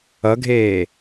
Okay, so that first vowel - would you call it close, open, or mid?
mid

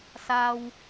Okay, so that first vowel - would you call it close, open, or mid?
open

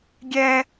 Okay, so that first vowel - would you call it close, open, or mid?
mid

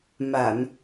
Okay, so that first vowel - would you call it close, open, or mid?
open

